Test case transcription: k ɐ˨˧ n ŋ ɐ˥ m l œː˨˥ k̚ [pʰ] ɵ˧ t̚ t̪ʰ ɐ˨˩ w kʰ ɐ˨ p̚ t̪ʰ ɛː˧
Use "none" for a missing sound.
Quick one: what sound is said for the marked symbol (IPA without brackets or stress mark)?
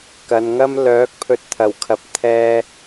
pʰ